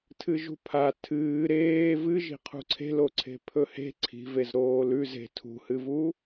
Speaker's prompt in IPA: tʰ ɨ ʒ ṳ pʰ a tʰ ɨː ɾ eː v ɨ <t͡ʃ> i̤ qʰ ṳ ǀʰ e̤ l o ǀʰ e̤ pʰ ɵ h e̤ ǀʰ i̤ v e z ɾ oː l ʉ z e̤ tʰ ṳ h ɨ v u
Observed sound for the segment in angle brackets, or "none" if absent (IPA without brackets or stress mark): ʒ